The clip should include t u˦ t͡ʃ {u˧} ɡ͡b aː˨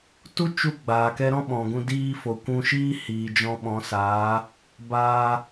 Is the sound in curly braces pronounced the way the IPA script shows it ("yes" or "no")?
yes